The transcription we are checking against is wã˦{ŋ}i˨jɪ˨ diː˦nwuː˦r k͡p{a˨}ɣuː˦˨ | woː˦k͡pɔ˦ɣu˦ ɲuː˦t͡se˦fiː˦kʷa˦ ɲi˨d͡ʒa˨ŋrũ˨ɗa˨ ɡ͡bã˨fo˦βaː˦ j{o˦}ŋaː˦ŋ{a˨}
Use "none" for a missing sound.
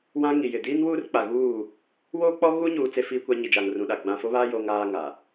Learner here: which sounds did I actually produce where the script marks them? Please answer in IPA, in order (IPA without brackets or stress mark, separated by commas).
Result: ŋ, a˨, o˦, a˨